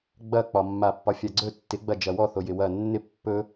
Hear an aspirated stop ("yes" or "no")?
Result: no